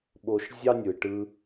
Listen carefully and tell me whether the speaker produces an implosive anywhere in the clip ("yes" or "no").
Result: yes